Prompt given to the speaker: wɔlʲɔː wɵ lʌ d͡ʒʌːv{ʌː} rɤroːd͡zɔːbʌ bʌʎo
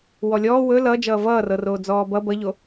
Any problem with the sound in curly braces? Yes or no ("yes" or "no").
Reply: no